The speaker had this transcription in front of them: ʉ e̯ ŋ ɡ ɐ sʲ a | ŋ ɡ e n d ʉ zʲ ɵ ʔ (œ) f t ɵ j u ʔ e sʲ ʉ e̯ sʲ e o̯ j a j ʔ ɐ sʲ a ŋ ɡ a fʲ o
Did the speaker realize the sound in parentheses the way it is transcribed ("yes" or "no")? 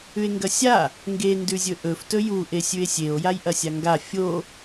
no